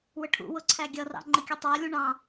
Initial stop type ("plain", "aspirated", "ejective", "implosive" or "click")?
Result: aspirated